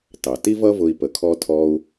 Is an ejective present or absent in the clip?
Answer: absent